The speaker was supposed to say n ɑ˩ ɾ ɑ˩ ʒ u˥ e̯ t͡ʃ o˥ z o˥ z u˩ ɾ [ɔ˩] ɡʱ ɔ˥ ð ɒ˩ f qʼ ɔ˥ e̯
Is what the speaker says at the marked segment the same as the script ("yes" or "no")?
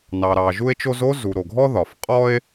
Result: no